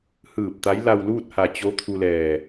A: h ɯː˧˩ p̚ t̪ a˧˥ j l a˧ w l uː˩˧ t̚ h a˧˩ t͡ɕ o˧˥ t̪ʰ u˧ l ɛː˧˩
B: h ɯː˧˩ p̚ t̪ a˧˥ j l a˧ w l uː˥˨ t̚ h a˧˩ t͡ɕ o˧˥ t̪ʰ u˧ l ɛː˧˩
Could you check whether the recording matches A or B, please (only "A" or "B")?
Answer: B